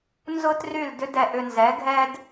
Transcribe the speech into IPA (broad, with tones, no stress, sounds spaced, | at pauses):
n z ʊ˦ t r y˦˨ l d ʏ˦ d ɛ˧ ʔ ʏ˧ n z ɛ˨˦ ɡʱ ɛ˦ d